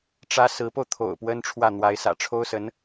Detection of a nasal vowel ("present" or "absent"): absent